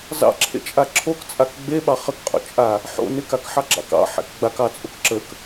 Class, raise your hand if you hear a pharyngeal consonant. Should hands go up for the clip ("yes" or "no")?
yes